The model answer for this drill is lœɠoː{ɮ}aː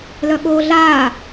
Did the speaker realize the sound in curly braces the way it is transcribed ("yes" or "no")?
yes